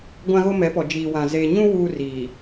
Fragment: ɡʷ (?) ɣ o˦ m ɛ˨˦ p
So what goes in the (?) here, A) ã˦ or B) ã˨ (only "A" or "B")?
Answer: A